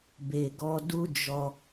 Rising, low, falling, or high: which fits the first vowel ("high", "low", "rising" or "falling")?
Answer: low